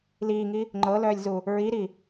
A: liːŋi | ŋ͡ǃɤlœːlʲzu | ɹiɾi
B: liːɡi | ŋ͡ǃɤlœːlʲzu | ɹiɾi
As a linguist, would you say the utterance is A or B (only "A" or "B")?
A